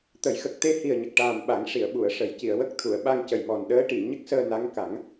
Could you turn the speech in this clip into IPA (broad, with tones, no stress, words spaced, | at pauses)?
t̪ə˨˩˦jxə˨˩k̚ t̪e˧hi˨˩ə̯ɲə˨˩k̚ʈaː˨˩m ɓa˨˩˦ŋʂi˨˩˨ə̯ɓu˨˩˨ə̯ʂə˨˩˦j ci˨˩˨ə̯wə˦˥k̚t̪ʰu˨˩˨ə̯ ɓa˧ŋcə˨˩j mɔ˨˩nɗəː˧˥ ʈi˨˩˨ ɲə˦˥k̚səː˧na˧˥ŋ ka˨˩˦ŋ